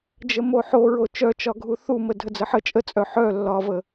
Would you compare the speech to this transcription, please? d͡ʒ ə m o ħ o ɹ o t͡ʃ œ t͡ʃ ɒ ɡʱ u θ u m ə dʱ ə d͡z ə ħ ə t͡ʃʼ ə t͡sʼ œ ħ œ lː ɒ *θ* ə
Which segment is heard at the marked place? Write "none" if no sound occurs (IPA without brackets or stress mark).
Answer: v